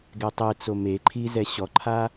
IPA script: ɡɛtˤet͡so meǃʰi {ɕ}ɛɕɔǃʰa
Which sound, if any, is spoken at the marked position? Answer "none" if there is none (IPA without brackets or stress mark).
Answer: z